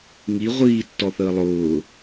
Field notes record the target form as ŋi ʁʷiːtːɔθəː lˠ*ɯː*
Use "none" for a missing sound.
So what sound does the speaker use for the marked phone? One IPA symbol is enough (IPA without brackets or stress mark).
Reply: ʊː